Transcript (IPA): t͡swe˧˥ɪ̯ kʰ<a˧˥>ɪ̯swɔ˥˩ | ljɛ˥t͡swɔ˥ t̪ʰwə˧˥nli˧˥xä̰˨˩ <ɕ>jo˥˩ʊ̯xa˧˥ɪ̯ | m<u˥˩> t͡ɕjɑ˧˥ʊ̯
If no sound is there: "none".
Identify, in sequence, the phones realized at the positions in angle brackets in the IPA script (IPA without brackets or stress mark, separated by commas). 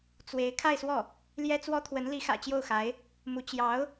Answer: a˥˧, t͡ɕ, u˧˥